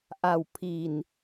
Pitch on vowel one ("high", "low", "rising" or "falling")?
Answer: low